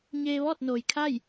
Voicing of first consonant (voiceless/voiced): voiced